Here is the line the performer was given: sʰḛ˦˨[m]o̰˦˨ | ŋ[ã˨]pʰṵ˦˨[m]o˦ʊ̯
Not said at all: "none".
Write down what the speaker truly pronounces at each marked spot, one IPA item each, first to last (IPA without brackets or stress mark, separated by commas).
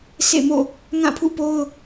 m, ã˦˨, p